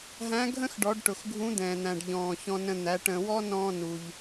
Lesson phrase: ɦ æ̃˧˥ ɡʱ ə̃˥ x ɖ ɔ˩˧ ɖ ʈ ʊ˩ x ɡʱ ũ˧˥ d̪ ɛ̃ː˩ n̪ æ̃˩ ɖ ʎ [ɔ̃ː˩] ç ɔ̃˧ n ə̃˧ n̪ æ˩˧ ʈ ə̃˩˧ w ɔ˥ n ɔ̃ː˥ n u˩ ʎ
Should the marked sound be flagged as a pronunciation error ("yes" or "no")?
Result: no